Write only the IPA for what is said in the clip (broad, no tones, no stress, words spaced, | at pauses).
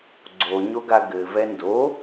ɡ͡ǀoɲoɡa ɡɘ vɛndo